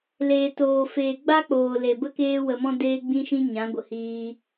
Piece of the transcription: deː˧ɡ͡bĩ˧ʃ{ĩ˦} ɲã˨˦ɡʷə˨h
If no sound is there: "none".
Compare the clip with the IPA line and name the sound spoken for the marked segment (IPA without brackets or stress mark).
ĩ˧